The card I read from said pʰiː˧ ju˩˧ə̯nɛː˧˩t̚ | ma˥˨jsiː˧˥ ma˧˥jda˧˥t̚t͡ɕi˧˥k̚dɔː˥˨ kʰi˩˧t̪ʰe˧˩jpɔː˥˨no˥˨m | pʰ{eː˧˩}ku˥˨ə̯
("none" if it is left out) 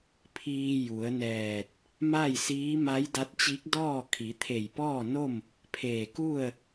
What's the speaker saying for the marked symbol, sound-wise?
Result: eː˧˩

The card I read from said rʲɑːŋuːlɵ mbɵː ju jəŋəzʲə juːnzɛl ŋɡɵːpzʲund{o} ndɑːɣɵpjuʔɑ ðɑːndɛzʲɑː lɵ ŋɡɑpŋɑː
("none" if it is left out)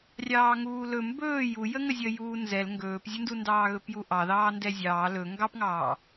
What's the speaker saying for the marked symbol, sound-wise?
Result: u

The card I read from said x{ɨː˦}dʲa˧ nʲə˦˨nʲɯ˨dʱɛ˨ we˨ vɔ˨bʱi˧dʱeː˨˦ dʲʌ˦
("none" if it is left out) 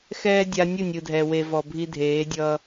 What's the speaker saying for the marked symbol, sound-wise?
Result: ɛː˦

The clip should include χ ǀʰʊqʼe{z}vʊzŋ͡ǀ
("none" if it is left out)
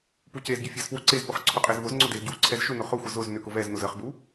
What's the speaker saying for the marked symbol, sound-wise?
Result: z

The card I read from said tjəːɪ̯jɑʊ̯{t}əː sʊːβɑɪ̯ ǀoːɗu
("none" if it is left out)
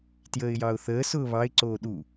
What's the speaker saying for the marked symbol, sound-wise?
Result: θ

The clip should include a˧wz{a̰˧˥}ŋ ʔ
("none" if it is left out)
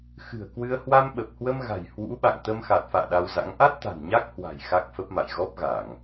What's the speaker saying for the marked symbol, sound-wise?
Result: a̰˧˥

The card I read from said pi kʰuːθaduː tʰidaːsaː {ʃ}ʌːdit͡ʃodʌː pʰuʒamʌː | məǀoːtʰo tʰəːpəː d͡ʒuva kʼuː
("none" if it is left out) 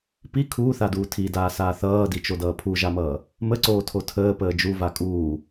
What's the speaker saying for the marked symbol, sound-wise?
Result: θ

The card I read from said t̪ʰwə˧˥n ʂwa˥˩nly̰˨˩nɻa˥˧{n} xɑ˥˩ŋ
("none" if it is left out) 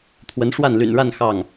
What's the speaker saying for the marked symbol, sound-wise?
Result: n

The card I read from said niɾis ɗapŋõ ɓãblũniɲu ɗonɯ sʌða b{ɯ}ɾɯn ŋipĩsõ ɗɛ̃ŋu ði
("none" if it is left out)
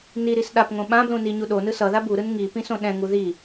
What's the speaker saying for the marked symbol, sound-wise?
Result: u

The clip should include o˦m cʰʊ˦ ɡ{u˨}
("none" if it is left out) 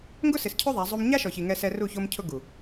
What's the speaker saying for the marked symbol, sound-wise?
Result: u˨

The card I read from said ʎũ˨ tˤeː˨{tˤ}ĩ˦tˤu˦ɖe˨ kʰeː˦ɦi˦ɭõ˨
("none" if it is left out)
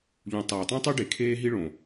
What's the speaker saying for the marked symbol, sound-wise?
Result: tˤ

